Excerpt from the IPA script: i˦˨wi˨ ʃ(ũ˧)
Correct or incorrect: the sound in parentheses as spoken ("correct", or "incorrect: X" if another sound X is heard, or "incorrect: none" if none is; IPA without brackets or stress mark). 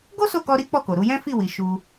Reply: incorrect: u˧